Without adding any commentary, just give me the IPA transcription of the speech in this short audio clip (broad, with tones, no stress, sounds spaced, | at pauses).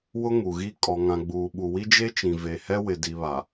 w ʊ˦ ŋ u˨ ɣ i˦ kʼ ɔ˨ ŋ ã˨ ɡ͡b uː˨ ɓ u˨ w i˦ d͡ʒ e˦ t͡ʃ ĩ˨ v e˨ h ɛ˦ w ɪ˨ d i˨ β a˨